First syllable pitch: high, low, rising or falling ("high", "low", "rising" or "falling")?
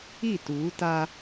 falling